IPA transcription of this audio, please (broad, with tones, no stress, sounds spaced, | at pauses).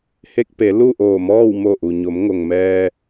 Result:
h e˧ k̚ p e˩˧ l u˥˨ ʔ oː˧˩ m ɔː˥˨ w m o˧˩ ʔ u˩ ɲ o˩˧ m ŋ o˩ ŋ m ɛː˧